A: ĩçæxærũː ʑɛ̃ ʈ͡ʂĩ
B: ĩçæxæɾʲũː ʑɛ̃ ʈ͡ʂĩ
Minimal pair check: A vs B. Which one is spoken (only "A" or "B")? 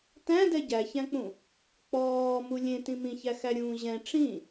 B